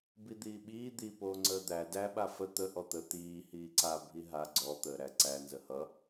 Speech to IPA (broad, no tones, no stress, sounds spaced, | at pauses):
b i d̪ iː ɓ iː d̪ i p oː ŋ͡ǀ əː d̪ æ d æ ɓ a f ə t̪ ə ʔ ɔ t̪ ə t̪ iː h iː ǀ a bʱ i ɦ a ɡ͡ǀ ɔ t̪ əː ɾ æ ǀ æ n z ə h ʌ